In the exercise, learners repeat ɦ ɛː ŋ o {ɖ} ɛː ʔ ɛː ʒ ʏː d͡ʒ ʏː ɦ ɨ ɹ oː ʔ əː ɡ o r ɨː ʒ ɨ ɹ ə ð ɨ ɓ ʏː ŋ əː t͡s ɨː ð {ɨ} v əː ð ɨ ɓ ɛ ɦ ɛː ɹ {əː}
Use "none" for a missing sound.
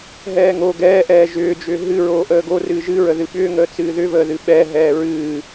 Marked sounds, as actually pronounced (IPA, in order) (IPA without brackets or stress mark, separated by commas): ɡ, ʏ, ɨː